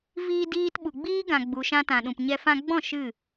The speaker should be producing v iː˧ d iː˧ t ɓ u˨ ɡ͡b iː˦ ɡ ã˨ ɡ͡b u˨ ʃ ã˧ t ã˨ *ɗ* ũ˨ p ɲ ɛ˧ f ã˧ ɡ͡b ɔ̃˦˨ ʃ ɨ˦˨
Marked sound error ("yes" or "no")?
no